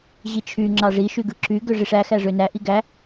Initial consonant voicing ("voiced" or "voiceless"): voiced